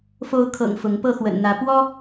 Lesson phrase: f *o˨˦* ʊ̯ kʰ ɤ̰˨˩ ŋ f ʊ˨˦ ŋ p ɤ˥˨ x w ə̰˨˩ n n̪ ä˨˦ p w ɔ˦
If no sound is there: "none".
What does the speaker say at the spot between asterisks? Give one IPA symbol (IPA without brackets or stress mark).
o˨˦